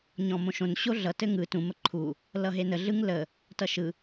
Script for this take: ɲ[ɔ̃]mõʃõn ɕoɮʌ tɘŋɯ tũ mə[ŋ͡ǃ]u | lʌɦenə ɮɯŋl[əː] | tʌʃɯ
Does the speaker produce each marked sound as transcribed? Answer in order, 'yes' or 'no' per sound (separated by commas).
yes, no, no